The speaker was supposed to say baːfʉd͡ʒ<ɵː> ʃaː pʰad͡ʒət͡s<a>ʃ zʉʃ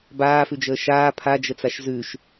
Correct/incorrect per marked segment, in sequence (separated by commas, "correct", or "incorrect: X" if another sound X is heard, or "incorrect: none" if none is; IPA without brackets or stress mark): incorrect: əː, correct